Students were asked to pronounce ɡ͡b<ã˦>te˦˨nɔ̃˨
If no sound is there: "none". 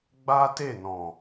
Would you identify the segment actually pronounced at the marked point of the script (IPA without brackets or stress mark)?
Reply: a˦